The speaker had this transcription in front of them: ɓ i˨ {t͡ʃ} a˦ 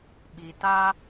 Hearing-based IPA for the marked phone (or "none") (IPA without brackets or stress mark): t